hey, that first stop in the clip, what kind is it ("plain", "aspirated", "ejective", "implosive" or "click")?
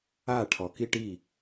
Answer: aspirated